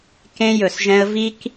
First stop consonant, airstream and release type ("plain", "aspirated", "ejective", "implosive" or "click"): plain